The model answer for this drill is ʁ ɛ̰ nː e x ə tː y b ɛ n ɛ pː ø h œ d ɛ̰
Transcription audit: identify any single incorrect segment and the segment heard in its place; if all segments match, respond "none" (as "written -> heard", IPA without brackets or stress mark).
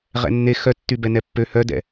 ə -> œ